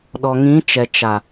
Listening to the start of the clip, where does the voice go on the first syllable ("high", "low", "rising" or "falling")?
low